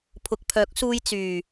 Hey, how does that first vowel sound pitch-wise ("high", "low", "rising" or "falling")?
low